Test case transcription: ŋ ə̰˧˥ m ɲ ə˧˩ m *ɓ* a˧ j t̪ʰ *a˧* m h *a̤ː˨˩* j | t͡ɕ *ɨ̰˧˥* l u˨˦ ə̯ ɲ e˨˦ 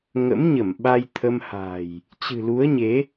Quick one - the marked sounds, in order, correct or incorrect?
correct, incorrect, correct, incorrect

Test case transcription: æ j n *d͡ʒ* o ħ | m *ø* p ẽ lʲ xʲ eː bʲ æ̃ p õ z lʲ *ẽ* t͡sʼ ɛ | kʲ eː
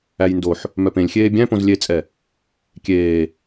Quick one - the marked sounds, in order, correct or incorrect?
incorrect, incorrect, incorrect

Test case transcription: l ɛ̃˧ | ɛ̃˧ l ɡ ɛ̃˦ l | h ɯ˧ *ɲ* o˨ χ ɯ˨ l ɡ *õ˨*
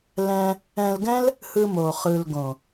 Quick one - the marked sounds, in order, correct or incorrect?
incorrect, correct

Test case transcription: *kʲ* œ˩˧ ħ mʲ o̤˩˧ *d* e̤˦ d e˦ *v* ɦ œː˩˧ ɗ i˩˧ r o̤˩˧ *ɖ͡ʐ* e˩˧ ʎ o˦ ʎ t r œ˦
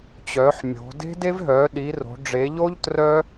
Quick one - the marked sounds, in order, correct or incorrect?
incorrect, correct, correct, correct

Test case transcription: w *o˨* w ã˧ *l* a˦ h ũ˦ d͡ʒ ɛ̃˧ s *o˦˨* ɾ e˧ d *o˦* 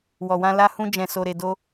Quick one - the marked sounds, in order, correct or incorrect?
incorrect, correct, incorrect, correct

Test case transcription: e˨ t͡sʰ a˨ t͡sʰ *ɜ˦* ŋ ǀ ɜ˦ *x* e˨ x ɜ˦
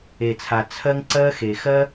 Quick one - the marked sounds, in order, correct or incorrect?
correct, correct

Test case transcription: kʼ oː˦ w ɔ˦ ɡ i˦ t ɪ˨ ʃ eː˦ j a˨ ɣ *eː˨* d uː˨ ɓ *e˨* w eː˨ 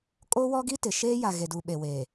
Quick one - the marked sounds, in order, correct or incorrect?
incorrect, correct

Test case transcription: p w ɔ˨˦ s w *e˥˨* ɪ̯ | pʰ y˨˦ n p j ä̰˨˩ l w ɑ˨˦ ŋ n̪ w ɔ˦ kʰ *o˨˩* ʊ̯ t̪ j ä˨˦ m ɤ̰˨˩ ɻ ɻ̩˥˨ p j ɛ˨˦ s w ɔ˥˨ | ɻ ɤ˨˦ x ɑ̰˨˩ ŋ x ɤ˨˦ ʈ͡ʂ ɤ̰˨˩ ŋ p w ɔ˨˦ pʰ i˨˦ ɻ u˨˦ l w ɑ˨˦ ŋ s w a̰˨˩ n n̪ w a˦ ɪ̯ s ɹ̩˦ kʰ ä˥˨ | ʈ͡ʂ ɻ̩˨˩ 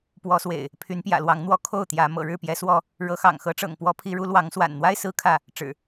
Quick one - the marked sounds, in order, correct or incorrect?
incorrect, incorrect

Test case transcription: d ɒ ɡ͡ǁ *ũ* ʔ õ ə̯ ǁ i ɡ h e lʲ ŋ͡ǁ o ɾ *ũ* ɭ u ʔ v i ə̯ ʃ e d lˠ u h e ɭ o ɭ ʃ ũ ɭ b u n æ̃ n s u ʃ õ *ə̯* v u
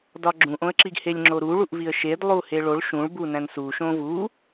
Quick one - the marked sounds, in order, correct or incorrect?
correct, incorrect, incorrect

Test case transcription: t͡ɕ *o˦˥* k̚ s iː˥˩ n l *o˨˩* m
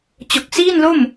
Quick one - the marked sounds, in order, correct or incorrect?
incorrect, incorrect

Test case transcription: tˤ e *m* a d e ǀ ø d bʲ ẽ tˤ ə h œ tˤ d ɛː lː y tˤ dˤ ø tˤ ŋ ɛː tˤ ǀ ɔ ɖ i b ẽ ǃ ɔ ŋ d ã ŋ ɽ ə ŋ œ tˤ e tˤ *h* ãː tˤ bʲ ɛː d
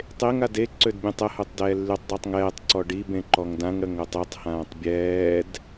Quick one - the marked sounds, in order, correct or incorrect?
incorrect, correct

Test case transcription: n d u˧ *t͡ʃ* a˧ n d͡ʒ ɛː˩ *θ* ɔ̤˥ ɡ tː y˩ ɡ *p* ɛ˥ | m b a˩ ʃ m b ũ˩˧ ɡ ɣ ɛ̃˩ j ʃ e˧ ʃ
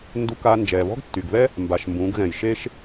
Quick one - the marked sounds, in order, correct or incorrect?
incorrect, incorrect, incorrect

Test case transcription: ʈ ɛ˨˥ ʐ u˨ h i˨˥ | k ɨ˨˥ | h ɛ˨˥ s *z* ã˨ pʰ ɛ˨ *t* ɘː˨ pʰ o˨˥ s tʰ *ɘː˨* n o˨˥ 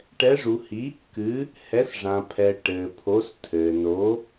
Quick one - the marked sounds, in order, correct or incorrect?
incorrect, incorrect, correct

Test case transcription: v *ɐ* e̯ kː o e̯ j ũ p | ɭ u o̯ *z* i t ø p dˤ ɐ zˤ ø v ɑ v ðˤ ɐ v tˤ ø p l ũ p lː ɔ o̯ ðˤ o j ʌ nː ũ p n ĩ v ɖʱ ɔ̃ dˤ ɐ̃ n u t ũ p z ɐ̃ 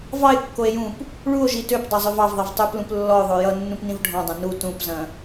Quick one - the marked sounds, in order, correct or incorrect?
incorrect, incorrect

